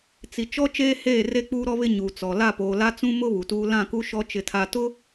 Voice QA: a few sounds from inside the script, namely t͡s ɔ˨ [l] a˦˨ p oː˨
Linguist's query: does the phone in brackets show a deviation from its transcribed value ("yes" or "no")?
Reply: no